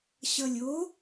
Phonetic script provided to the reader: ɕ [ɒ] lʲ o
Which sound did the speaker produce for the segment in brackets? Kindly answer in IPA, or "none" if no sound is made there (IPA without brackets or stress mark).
ʌ